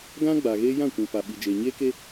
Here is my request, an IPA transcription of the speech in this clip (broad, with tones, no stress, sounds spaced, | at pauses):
ɡ ã˦ ɡ͡b a˨ ɣ eː˦ j ã˦˨ kʷ ĩ˨ p a˨ ɓ i˨ d͡ʒ eː˨ ɲ eː˦ k e˦